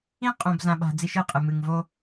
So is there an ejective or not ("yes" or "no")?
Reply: yes